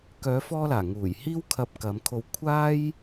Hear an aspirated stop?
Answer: yes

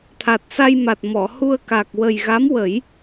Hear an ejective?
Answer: no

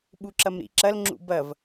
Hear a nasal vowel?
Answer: no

